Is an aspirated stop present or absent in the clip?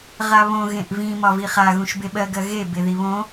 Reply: absent